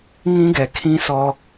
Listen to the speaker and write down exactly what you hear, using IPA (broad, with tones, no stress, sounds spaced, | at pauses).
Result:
ŋ ĩ˦ ɡ ɛ˨ kʰ ĩ˦ s ɔ˦